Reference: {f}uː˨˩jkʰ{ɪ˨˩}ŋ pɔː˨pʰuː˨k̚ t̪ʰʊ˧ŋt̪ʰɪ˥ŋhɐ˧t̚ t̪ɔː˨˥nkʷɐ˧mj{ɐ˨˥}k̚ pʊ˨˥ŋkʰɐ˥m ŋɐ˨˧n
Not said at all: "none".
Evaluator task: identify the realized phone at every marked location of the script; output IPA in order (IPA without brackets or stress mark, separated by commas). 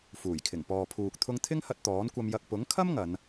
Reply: f, ɪ˨˩, ɐ˧